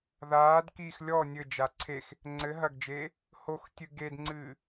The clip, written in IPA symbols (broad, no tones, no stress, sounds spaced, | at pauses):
ð aː d k iː x lʲ ɔ nʲ ɘ d͡ʒ a ǀʰ e x | ŋ͡ǀ ɘ ɦ ɐ ɡ d͡ʒ eː | h o x tʲ ɨ ɡ e d ŋ͡ǀ ɨː